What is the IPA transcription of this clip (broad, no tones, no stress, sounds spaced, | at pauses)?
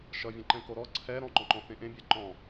ʃ ʌ vʲ ẽ ǃ ɛ̃ k o ɾ ɔ ǀʰ ɛ ɾ ɔ̃ ŋ͡ǃ ɔ̃ ŋ͡ǃ ɔ̃ θ ẽ ʔ ẽ bʲ ɛ ǃ ɔ̃